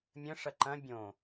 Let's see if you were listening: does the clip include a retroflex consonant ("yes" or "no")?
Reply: yes